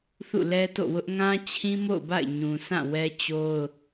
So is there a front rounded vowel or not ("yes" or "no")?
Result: no